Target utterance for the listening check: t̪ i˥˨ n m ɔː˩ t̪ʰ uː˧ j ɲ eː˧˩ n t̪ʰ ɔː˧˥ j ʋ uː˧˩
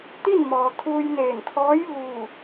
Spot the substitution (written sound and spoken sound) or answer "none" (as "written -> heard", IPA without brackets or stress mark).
ɲ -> n